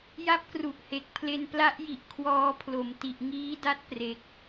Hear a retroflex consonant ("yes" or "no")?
no